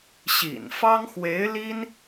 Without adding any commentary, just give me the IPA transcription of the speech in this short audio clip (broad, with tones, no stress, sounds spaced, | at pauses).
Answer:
ɕ ḭ˨˩ n f ɑ˥ ŋ x w e˧˥ ɪ̯ l i˥ n